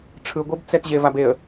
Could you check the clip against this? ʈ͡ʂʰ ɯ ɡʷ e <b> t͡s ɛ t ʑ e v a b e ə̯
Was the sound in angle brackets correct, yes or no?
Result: yes